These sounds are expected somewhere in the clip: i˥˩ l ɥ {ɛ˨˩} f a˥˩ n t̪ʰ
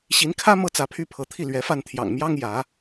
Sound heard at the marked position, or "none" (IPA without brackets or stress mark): ɛ˧˥